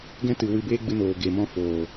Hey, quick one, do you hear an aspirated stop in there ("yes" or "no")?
no